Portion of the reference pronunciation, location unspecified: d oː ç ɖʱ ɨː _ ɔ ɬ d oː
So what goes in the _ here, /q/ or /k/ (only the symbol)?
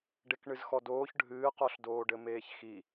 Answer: q